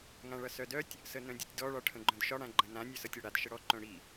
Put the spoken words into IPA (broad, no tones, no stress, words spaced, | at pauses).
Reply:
ŋãɭʌsœdœtʲ | sənœ̃dʲɒtʲdɔ ɭɒʈʰə̃ɡ͡ǃœ̃dʃɒ ɽãɡ͡ǃə̃nã nʲœsʌtʲɔɽad ʃəɽɔ ǃœ̃ɽi